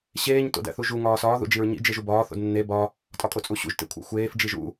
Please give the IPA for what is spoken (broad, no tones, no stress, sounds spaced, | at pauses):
ɕ eː ɲ t o̰ d æ̰ θ u ʒ u ŋ ɒː s ɒː ð ṵ d͡ʒ i ɹ ɲ ḭ d͡ʒ e ʒ u b ɒː θ o̰ d nː e b ɒ | tʼ ɒ kʼ o t͡sʼ u ɕ ṵ ʒ t ḛ kʷʰ ḛ xʷ eː f d͡ʒ i ʒ ṵ